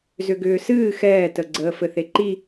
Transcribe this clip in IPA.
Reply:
zʏɡʏːsɨː xɛːtəɡ͡ǀəː fɘθeǃi

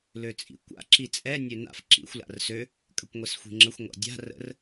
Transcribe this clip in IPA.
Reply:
løt͡sʼḭkʷa̰ ǁit͡sʼɛ nʲøna̰f ǁḭxʷ la̰rsø | kʼəkʷŋʷɛsxʷi̤ŋ͡ǁəxʷ ŋʷa̰dʲa̤ rə̰r

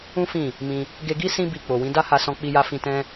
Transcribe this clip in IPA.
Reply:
ũ˦ fĩ˦˨ | mĩ˧ | ɡe˧ɡi˦ sĩ˦ bi˧ k͡po˨wĩ˨˦ da˦ha˧sɔ̃˧ k͡pi˧ja˧ fĩ˧tɛ̃˦

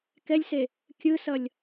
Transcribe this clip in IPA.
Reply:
kɛlʲse | kʲɯsʌlʲ

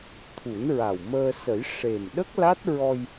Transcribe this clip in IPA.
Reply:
t̪ʰu˨˩˦nɹa˨˩wməː˧ sə˨˩˦jʂe˨˩m ɗə˦˥k̚la˦˥t̚ ɹɔ˧j

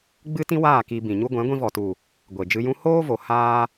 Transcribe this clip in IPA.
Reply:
ɡ͡bɨ˦ tĩ˦waː˦˨ ki˧ bĩ˨ɲu˦ ɡʷɛ̃˨˦ɡʷĩ˧vɔ˨tu˨ | ɡʷe˨ d͡ʒɨ˧jũ˦ hoː˦vo˨ haː˦

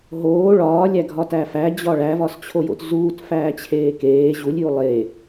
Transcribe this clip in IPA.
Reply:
ɦoː ɭɒːlʲæɡʱɒtæ fæd͡ʑɒ ɭævɒst͡ɕʰojo̰t zuːtfæːt͡ɕʰeː keː ʑulʲju lˠe

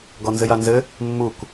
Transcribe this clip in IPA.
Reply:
ɡɔnzɘjanzɘ | mːuk

